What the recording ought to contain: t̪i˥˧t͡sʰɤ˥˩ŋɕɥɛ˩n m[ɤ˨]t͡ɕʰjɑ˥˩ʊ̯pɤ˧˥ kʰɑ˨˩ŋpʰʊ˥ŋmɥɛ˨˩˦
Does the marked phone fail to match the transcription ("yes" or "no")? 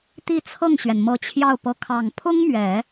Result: yes